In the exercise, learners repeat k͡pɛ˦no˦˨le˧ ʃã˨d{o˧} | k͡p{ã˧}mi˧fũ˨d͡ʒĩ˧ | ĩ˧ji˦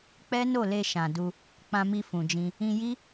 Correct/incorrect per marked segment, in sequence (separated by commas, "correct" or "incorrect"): incorrect, correct